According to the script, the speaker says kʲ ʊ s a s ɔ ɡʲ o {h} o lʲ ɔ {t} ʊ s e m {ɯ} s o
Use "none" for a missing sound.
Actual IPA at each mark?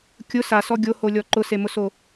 h, ǃ, ʊ

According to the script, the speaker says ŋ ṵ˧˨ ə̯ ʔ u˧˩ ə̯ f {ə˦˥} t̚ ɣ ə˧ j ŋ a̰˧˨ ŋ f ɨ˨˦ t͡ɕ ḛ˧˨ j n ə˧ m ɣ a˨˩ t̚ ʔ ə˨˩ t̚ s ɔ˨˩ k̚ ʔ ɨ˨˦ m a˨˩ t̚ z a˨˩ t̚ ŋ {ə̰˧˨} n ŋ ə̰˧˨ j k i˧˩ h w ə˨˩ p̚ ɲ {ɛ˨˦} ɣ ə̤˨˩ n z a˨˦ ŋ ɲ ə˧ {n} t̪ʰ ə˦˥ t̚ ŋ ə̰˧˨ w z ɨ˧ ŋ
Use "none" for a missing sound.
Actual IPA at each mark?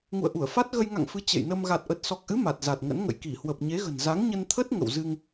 a˦˥, ə̰˧˥, e˨˦, n

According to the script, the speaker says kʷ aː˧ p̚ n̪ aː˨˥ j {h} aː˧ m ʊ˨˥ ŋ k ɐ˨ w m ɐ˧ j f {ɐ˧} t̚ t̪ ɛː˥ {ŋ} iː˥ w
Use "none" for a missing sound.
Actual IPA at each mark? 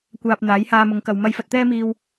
h, ɐ˧, m

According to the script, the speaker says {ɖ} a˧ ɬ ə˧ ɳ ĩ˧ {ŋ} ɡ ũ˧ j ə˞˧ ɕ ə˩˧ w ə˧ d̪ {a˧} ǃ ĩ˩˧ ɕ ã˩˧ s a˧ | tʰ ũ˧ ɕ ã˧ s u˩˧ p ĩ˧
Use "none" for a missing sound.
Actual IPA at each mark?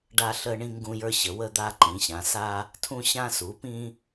ɖ, ŋ, a˧

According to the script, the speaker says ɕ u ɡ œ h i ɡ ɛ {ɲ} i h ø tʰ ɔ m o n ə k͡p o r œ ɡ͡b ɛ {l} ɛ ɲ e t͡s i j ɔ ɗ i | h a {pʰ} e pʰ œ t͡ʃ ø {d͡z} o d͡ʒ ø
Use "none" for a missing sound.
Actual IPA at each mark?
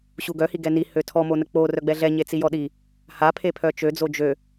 n, ɮ, pʰ, d͡z

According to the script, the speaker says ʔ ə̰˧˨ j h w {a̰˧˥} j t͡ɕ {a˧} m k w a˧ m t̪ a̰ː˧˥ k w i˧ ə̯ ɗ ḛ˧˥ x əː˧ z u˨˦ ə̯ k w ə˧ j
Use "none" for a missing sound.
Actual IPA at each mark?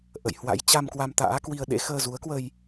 a̰˧˥, a˧

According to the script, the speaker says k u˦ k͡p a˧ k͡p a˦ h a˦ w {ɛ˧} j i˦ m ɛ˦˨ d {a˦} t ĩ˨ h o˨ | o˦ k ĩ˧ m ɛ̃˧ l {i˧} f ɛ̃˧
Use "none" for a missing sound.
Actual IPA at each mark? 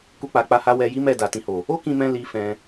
ɛ˧, a˨, i˧

